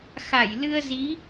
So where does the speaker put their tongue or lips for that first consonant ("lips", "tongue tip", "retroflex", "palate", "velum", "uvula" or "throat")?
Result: velum